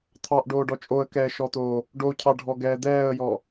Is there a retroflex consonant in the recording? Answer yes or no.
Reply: yes